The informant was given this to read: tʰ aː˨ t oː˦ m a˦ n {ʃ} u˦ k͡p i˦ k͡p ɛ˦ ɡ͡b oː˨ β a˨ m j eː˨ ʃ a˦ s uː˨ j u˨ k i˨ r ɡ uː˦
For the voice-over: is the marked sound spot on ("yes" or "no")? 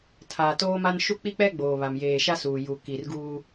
yes